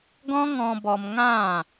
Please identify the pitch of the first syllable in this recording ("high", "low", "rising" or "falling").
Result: high